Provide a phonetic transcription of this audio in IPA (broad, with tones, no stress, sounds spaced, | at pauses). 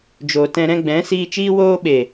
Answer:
d͡ʒ o˨ t ɛ̃˧ ɾ ɛ̃˧ ɡ͡b ɛ̃˨˦ s iː˧ t͡ʃ iː˦ w oː˦ ɓ e˨